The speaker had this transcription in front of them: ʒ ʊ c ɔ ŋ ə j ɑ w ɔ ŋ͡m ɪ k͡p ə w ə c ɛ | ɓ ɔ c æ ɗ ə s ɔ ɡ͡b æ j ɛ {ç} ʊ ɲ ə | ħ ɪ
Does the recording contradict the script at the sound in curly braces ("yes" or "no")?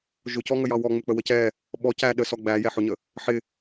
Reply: yes